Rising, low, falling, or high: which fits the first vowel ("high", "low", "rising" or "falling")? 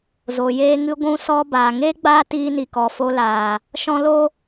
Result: low